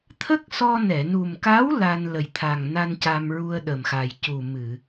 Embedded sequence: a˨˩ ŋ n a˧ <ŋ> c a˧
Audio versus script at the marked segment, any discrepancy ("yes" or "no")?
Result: yes